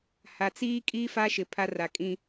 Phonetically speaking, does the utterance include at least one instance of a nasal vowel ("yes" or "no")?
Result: yes